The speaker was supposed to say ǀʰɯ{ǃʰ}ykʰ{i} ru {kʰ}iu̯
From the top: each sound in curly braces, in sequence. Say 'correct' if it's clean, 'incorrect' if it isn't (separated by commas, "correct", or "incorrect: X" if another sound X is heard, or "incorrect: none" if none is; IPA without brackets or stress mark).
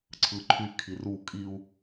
correct, correct, incorrect: kʼ